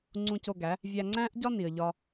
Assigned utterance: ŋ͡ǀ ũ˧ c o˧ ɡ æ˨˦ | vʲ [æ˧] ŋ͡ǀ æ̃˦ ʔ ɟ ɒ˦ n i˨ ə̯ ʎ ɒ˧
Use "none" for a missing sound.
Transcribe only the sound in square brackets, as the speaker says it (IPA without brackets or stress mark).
æ˧